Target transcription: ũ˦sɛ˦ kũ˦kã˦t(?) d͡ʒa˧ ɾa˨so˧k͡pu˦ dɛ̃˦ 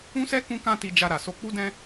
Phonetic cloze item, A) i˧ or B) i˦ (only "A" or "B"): A